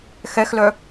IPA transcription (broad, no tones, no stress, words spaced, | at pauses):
xɛxlœ